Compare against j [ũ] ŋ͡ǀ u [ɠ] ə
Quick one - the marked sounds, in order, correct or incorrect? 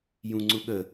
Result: correct, correct

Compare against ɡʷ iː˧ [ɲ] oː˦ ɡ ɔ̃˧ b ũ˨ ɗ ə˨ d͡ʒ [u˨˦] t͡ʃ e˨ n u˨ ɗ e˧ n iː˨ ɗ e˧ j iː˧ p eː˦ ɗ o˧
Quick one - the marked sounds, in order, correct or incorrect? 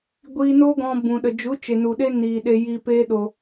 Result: incorrect, correct

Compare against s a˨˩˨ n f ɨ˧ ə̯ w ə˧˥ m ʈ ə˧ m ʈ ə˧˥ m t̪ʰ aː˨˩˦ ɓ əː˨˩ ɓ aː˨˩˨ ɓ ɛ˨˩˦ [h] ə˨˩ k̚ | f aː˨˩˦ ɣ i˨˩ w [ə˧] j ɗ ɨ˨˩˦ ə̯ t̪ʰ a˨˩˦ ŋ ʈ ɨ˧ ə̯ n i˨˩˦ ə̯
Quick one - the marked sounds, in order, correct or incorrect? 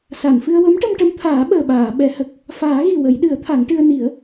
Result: correct, incorrect

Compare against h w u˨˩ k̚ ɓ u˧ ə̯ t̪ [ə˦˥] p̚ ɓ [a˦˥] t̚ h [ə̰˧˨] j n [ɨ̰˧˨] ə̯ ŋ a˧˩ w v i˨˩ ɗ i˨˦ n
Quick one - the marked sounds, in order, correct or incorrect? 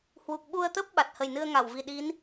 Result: correct, incorrect, incorrect, incorrect

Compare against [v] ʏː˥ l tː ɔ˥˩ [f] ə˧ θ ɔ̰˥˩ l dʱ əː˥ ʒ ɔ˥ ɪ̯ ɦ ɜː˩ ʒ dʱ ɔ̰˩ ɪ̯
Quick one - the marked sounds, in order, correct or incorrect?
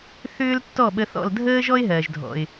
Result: incorrect, incorrect

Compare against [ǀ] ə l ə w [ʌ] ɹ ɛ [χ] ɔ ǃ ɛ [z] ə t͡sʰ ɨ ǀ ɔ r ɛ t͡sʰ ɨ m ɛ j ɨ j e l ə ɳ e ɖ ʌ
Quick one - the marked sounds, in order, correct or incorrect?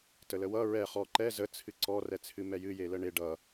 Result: incorrect, correct, correct, correct

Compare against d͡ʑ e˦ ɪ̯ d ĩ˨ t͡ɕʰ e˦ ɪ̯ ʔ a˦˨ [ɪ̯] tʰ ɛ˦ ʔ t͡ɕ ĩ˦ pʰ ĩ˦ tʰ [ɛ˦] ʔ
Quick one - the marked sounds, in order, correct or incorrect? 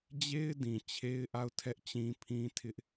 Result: incorrect, incorrect

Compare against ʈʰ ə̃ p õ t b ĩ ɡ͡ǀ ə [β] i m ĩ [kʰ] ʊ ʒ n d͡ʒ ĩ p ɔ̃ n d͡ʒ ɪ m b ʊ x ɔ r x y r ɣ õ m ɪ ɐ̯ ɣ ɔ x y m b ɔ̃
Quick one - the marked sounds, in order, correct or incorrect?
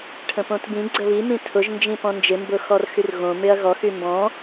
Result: correct, incorrect

